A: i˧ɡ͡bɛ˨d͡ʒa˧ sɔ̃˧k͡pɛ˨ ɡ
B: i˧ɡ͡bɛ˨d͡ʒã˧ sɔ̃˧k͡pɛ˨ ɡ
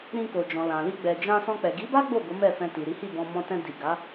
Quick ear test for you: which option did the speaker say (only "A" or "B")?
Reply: B